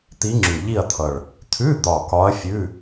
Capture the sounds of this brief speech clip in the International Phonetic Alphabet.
t̪i˧˥ŋ͡ǁʉ˨˩ʎi˥˨ɐ̯t̪ʰʌ˨˩ɭ | t̪ʰʉ˧˥˧ d̪ɒ˨˩ kɒ˧˥ɐ̯fʲʉ˧˥˧

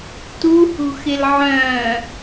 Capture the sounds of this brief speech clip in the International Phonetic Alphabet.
tuhṳxɪl ʕœ̃

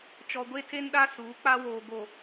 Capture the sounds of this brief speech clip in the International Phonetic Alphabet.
t͡ʃɔ˨ɡʷe˦tʰe˦nɗa˦ suː˨˦k͡pa˦woː˨ɡo˨

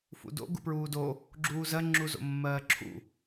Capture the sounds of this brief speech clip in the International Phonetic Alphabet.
fṵdo̰ ɡṵpɹuːdo | ɡ͡ǁuːzɜ ŋ͡ǁuzo̰mːɜːǁʰṵ

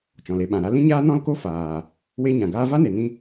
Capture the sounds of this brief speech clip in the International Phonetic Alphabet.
t͡ʃɔ̃˨le˧ɓã˨ɾa˦ lĩ˦ɲaː˦nɔ̃˦lko˦ faː˨ | we˦ɲã˨ɡaː˦ va˦ne˨nĩ˧

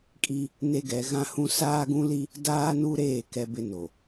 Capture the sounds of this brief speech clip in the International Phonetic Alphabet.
kʼi˦ | ne˦ɡɛ˨˦ ɣã˦hũ˦ saː˦ɡũ˦li˦ | daː˦nu˦ɾeː˦˨ kɛ˦bɪ˦no˨

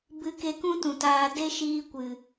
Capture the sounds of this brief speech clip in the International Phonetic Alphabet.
bɨ˧ke˧kũ˦tũ˨ taː˧ de˦ʃiː˧ kʷɨ˨

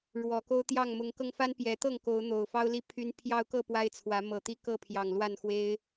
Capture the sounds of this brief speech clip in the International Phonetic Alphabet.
ɻwɔ˨˩ko˦ʊ̯t̪jɑ˥˨ŋ mʊ˨˦ŋkɤ˧ŋfa˦n pjɛ˨˦t̪ɤ˥˨ŋ ko˨˦ʊ̯ n̪o˨˩ʊ̯fɑ˦ʊ̯ li˥˨pʰy˦n pʰjɑ˦ʊ̯kɤ˥˨ pwa˦ɪ̯t͡sʰwä˨˦mɤ˨˩t̪i˦ kɤ˥˨ pʰjɑ˨˩ŋlwa˥˨nxwe˦ɪ̯

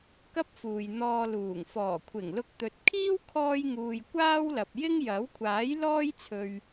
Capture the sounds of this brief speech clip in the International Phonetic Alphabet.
kɐ˥p̚fuː˨j n̪ɔː˧luː˨˩ŋ fɔː˨˩kʷʰɪ˨˩ŋlʊ˧k̚ t̪ɵ˨t̚kʰiː˥w kʰɔː˥jŋuː˧j kʷaː˥wlɐ˨p̚jɪ˥ŋ jɐ˨˥wkʷʰaː˨˥jlɔː˥j t͡sʰɵ˧ɥ

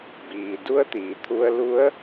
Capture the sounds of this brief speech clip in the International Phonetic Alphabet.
biː˩du˧˥ə̯t̪iː˩ t̪ʰu˧ə̯lu˧˥ə̯

